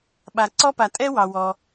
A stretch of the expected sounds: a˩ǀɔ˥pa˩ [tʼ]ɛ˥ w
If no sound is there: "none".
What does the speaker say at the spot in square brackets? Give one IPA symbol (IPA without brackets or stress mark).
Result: tʼ